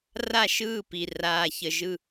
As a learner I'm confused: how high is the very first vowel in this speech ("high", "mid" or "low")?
low